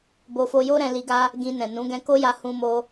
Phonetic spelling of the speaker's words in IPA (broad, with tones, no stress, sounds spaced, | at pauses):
b o˧ f o˧ j o˦ ɾ ɛ̃˧ l i˧ ɡ a˦ | ɡ ĩ˧ n ɛ̃˨ n ũ˨˦ ɡ ɛ̃˧ k o˦ j a˧ h ũ˦ m o˦